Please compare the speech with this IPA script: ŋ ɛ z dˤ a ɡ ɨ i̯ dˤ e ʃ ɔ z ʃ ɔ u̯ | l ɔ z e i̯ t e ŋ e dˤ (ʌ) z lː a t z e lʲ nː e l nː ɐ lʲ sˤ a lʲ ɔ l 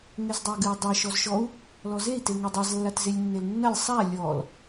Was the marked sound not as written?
yes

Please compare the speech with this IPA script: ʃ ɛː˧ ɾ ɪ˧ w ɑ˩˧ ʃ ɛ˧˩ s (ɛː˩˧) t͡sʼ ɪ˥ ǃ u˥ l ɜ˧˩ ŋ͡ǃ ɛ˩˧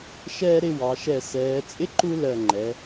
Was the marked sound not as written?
no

